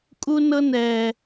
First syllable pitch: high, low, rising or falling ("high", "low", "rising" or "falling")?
high